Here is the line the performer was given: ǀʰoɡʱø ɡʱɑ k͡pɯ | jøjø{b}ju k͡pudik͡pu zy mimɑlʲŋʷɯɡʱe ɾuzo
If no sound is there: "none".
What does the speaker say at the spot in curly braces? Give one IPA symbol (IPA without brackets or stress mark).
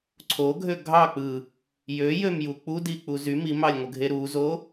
m